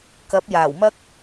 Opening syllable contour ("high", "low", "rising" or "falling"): rising